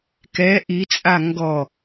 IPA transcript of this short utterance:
k ɛ ʔ i t͡sʼ a ŋ ɡ ɔ

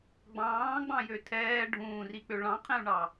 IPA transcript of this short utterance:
ɡ͡b ɑ̃ː ɡ͡b ɑ̃ j ø tʰ ɛː ɖʱ ũː r i k͡p ø ɭ ɑ̃ qʰ ɛ̃ u̯ ɳ ɑ

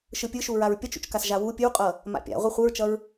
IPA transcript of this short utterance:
ʃ ɯ pʲ ɯ ʃ u ɹ a ɹ pʲ ʌ t͡ʃ ṵ t͡ʃ k a s ʒ a w u pʲ ɯ w qʼ ʌ | m a̰ pʲ a̰ ʁʷ i χʷ ɯ ɹ t͡ʃ ʌ ɹ

